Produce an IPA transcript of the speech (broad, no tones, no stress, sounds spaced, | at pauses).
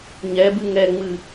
ɲ ɛ b ɨ ŋ ɛ ŋ͡m ɨ